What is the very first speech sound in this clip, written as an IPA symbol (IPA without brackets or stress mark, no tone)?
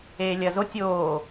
eː